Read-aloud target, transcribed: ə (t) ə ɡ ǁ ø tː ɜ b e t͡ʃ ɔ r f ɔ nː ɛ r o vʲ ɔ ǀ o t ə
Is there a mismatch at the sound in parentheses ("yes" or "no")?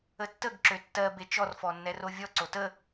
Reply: yes